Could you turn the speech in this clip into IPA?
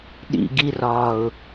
ɗḭ ɡirɒːʊ̯

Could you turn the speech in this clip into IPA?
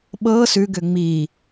ɓɤ sʉɡʏ ŋ͡mi

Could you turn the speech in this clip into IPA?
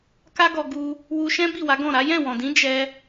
ka˦ɡɔ˧ɡu˧ | wu˧ʃɛ̃˦ bi˦˨wa˨˦ɡɔ̃˦˨ɾa˨˦ jɛ̃˦˨wɔ̃˨dĩ˨˦ d͡ʒɛ˧

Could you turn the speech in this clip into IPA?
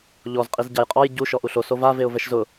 ʎɔz qʼizɟajqʼɔj ɟu ʃɔʔuɬo sova veʊ̯vɛʃzʊ

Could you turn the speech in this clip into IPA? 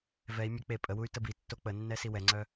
vɛi̯ mʲə k͡pe pʼəwuy̯ təbitːo k͡pənːɛ siwɛŋ͡ǀœ

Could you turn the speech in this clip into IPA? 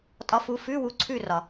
tʼɒ˨˥fu˩˧˩ fʉ˧˥˧wu˩˧˩ ǀʰʉ˦˨ rɒ˩

